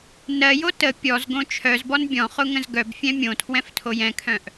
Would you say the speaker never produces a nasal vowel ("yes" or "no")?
no